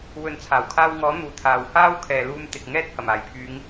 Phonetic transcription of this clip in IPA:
w ɵ˨˥ n t͡sʰ aː˨˩ w kʰ aː˧ w ŋ ɔː˨˥ n̪ uː˨˥ t̪ʰ aː˨ w h aː˥ w kʰ ɛː˨ l uː˧ m t̪ ɪ˨ k̚ ŋ ɛː˥ t̚ h ɐ˨˩ m aː˨˩ j pʰ yː˨˧ ŋ

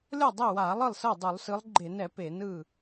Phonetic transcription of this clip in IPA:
lʲ ɔ˥˩ dˤ ɛ˥˩ w a˧˩˧ lˠ ɯ˥˩ lˠ s ɤ˥˩ dˤ u˧˩˧ lˠ s ɯ˨˦ lˠ ɡ͡ǃ e˧˩˧ n ɛ˧˩˧ p e˧˩˧ n ɯ˥˩

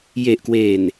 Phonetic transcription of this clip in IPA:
j e˨˩ ʔ k w eː˨˩ n

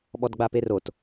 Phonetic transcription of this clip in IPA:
ɓ ɔ d ɡ͡b a p e r o t

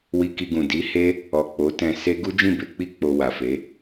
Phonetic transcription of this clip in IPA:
w i˧ k i˧ ɡ ũ˨ d i˨˦ h e˦ | ɔ˨ k͡p o˨˦ t ɛ̃˧ s e˦ ɡ u˦ d͡ʒ ĩ˦˨ b e˧ k͡p i˦ k͡p o˧ w a˨ f e˨˦

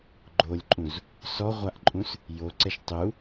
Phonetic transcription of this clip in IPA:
ɡ͡ǃ o lʲ ǃʼ ũ z | s ɔ ʁʷ a ʔ ǃʼ ũ s | j o ǀ ɛ ʃ tˤ u

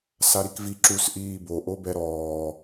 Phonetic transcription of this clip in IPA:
s a ɾ i k v i ǁ u s ʔ iː b o ʔ o b ɛ ɾ ɔː

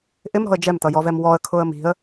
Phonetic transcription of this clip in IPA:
ʔ ɪ m ɾ ɔ̤ ə̯ d͡ʒ ɛ m t ʌ j ɔ v ɛ m w ɔ ə̯ kʰ ʊ ə̯ m i̤ ə̯

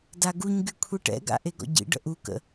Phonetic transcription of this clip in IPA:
d a ɡ u ɲ ɡ y kʷʰ i ʈ ɛ̰ ɡ a̰ ʔ e ɡ ɔ̰ ɟ ḭ ɖ ə̰ ʔ u k ə̰

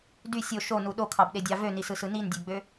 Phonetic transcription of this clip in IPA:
d y sʲ o ʃ o n u ɗ o kʰ ɑ b ɗ e dʲ ɑ v ø n i s ɯ s ɯ n i n dʲ ø ɡ͡b ø

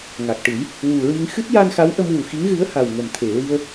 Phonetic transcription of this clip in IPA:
ŋ a˨˩ k̚ ʈ ɨ˨˩˦ j | w u˨˩ ɹ i˧ ŋ x ɨ˦˥ t̚ j a˧ n x a˧˥ w ʔ ə˧ m w u˨˩ x i˧˥ ŋ ɣ ɨ˧˥ ə̯ h a˨˩ w ŋ ə˨˩ m t̪ʰ e˨˩ ɹ i˧ ə̯

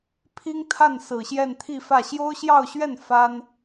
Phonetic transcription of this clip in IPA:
pʰ i˥ ŋ t̪ʰ a˥˩ n s ɹ̩˨˩ ɕ j ɛ˥˧ n t̪ʰ i˥˧ f ä˥˩ ɕ j o˥ ʊ̯ ɕ j ɑ˥˧ ʊ̯ ɕ ɥ ɛ˥˩ n f a˥ n

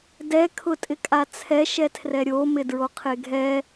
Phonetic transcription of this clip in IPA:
d ɛ kʰ ʊ tʼ ɪ kʼ a t͡sʰ ɛ ʃ ɛ tʰ r ɛ ɾʲ o m ɪ d ɹ o qʰ e ɡʱ ɛ

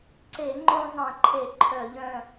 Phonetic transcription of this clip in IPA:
ǀ e˧˩˧ ŋ͡ǃ õ˦ zˤ ẽ˧˩˧ ǃʰ e˧˩˧ ǃʰ œ˧˩˧ ʎ œ̃˩˧˩

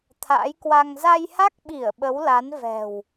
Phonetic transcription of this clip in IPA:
t̪ʰ a̰ː˧˥ j k w a˧ ŋ z a˧ j h a˦˥ k̚ ɓ i˧˩ ə̯ ɓ ə˨˦ w l a˨˦ n v ɛ̤˨˩ w

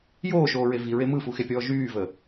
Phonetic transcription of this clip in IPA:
j oː ʃ oː ɹ e v i ɹ e m ɯ f u x e pʲ ɔː ʒ yː v ə

